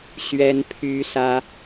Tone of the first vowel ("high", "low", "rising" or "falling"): high